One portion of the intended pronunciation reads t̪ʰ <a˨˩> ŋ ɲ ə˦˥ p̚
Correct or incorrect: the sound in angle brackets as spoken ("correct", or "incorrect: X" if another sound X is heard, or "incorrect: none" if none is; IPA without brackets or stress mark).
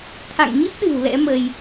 incorrect: a̰˧˨